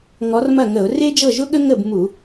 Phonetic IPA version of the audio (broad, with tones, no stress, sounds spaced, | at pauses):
ŋ ɔ˨˥ r m ɐ˥˩ ŋ ə˧˩˧ ʊ̯ r e˥ d͡ʒ ɤ˥˩ ʒ ʊ˥ ɠ ə˥ ŋ ə˥˩ b m u˧˩˧